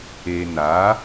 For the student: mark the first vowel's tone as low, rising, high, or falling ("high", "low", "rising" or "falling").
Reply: low